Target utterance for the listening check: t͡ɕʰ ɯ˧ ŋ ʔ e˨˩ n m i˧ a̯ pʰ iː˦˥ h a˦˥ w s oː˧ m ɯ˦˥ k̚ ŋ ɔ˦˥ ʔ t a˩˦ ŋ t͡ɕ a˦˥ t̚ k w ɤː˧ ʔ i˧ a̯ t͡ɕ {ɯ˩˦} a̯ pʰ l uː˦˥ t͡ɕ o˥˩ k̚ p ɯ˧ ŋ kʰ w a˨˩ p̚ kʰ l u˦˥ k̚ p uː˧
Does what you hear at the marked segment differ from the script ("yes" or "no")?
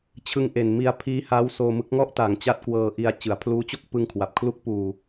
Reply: no